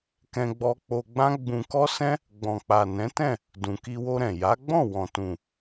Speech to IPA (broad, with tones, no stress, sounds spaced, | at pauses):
k ɛ̃˧ ɡ͡b ɔ˧ k͡p o˧ ɡ͡b ã˦ ɡ͡b ũ˧ k ɔ˦ s ɛ̃˦ | ɡ͡b ɔ̃˨ k͡p a˨ n ɛ̃˨˦ t ɛ̃˦˨ | d ũ˨ k i˧ w o˧ ɾ ɛ̃˨ j a˨˦ ɡ͡b ɔ̃˦˨ w ɔ̃˨ t ũ˨